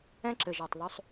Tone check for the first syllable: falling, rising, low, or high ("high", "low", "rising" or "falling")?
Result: high